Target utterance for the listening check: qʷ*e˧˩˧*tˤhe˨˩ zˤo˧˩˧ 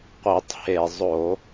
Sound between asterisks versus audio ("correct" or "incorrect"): incorrect